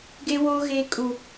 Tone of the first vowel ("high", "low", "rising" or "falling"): high